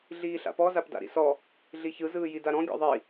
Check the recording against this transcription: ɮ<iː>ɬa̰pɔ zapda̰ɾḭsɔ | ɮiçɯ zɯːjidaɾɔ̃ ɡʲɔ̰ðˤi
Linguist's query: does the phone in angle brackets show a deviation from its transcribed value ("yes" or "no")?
no